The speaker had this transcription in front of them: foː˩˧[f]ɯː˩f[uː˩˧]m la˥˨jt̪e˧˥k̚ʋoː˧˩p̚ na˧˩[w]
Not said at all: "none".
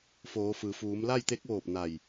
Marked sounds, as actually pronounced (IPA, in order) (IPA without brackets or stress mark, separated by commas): f, uː˩˧, j